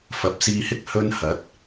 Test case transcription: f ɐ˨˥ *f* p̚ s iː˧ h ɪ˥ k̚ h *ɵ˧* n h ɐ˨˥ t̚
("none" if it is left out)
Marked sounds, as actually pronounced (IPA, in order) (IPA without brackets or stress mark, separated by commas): none, ɵ˥